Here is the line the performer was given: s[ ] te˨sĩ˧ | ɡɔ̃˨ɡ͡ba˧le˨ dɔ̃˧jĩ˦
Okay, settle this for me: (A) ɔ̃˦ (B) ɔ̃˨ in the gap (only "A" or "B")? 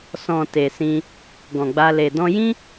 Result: B